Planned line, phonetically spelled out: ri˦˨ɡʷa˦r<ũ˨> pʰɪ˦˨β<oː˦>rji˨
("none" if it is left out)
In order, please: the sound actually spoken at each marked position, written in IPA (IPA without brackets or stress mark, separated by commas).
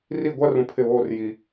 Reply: ũ˨, oː˦